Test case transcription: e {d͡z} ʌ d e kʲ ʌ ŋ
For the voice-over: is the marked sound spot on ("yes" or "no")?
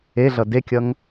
no